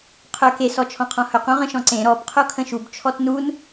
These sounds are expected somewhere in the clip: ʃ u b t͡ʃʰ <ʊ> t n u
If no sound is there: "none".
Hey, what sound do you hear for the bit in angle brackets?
ɔ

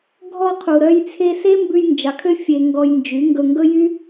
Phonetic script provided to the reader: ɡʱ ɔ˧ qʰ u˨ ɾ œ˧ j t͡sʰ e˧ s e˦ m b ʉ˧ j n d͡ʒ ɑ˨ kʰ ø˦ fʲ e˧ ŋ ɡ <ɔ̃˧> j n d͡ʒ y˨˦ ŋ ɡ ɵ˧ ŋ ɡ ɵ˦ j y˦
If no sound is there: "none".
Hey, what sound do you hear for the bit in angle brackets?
ɔ˧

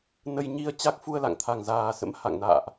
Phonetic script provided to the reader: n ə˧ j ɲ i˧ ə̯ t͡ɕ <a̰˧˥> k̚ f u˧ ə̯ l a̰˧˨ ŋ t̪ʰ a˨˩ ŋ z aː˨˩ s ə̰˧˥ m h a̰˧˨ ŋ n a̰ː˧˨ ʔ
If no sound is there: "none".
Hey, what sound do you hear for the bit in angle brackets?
a˦˥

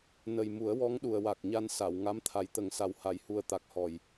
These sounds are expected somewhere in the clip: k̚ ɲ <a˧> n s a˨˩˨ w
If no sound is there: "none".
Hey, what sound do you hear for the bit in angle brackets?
a˧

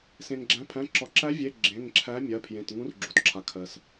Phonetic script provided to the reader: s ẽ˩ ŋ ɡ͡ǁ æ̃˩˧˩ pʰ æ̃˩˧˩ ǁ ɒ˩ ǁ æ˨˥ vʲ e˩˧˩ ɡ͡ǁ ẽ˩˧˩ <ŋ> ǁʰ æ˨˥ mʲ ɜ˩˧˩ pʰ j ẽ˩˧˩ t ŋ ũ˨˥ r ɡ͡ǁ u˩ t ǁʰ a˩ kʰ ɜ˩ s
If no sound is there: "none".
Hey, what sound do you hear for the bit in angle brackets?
ŋ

